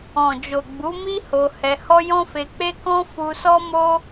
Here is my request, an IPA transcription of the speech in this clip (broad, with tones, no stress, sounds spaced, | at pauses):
ɔ̃˨ d͡ʒ o˨ ɡ͡b u˨˦ m i˦ h o˧ h ɛ˧ h ɔ˦ j ɔ̃˦ f e˧ k͡p e˦ k ɔ̃˦ f u˧ s ɔ˦ m o˦